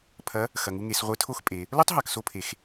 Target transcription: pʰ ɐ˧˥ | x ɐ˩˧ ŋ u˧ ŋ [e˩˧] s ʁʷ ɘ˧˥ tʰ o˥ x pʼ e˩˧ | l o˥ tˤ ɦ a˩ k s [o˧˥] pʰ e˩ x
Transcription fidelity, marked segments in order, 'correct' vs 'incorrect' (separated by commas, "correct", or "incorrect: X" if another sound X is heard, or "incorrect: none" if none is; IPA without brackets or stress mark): correct, incorrect: o˧